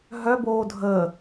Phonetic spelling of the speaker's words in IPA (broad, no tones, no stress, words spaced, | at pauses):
ɦœ boːdʱəː